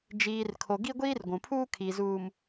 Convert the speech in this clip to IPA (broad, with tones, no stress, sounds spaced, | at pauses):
d͡ʒ iː˨ r kʰ o˨ ɡ i˦ ɡʷ iː˦ r ɡʷ ũ˨ pʰ uː˦ kʰ i˨ z uː˨ m